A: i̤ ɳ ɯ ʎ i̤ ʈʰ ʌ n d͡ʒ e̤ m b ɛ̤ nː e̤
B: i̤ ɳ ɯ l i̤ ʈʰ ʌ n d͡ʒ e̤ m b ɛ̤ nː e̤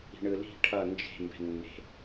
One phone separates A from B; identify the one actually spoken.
B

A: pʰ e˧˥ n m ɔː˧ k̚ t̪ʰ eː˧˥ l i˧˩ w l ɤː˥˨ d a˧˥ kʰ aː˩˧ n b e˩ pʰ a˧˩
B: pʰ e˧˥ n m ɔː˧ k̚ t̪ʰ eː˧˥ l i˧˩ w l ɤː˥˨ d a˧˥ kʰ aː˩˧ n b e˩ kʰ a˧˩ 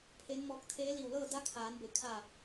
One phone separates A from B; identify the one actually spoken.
B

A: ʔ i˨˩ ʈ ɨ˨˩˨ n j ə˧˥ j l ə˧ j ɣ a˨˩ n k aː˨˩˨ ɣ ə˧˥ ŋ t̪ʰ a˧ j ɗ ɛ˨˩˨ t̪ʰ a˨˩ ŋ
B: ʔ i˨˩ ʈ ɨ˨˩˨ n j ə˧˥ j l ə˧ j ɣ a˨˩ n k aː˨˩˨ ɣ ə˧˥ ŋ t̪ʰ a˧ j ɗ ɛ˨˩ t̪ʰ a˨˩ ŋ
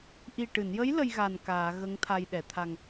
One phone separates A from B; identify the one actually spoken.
A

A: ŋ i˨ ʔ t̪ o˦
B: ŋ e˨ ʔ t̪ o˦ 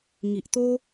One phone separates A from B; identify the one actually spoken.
A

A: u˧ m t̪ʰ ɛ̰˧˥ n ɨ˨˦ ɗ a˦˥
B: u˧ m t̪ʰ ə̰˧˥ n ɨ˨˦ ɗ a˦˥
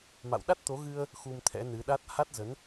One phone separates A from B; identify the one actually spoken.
A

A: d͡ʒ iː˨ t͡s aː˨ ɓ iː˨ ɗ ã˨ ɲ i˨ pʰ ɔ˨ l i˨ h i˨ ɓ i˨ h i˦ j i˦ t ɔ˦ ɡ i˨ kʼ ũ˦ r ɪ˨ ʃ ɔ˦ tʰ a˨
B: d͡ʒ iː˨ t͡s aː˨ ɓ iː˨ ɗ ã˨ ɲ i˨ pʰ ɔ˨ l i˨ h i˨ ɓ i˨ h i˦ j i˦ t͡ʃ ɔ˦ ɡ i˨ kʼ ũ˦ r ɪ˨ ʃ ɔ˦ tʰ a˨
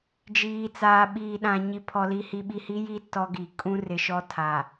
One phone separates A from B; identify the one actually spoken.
A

